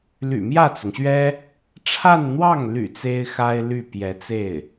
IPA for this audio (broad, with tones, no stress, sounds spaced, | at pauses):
l y̰˨˩ m j ä˥˩ t͡s ʊ˩ ŋ ɕ ɥ ɛ˥ | ʈ͡ʂʰ a˥˧ n n̪ w ɑ˥˩ ŋ l y̰˨˩ t͡s e˥ ɪ̯ x a˥ ɪ̯ l y˥˩ p j ɛ˧˥ t͡s e˥˩ ɪ̯